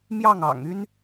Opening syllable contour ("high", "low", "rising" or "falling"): falling